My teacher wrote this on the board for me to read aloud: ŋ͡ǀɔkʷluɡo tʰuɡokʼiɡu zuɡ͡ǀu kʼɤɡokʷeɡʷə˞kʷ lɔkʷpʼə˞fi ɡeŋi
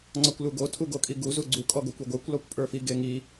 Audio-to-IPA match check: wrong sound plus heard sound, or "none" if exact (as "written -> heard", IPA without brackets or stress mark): ɤ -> ɔ